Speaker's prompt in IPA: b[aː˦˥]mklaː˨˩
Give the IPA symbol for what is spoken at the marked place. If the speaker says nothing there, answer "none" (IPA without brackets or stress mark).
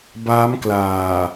aː˦˥